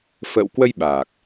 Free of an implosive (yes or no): no